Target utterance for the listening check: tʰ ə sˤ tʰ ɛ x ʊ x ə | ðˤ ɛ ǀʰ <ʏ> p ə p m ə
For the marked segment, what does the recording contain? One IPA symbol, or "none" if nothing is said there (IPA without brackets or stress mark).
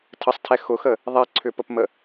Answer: ʏ